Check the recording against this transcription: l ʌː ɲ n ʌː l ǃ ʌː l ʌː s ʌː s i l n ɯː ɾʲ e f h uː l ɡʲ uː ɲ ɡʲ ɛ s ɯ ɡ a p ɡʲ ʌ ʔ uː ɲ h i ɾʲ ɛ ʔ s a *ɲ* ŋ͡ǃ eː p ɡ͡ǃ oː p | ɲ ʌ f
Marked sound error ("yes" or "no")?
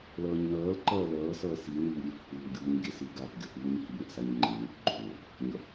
no